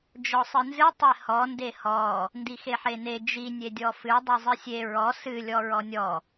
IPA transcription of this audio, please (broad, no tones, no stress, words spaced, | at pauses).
d͡ʒɔsˤɨnzɨ tˤehɔ ndehɔ | ndixeħene d͡ʒi nʲedʲɔfɨ dˤɨzˤɨsʲe ɹɔ sɨ lʲɔɹɔnʲɔ